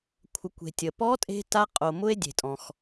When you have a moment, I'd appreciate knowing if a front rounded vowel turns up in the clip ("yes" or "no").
no